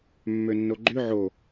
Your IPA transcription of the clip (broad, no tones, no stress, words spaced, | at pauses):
mːønːoɡ͡ǃy ʕo